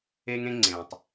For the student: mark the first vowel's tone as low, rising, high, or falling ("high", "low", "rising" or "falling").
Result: high